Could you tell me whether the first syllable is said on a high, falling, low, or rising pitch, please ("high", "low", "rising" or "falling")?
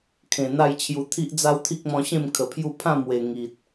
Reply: low